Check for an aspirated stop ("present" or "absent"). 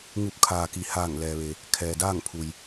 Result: present